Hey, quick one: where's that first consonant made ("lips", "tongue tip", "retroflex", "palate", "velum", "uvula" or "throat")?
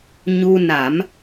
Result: palate